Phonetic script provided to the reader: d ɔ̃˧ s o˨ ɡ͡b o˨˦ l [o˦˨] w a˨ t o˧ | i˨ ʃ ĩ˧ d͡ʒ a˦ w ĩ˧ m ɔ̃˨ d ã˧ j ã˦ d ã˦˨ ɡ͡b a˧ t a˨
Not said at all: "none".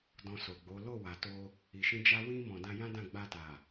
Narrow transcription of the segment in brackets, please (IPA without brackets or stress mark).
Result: o˦˨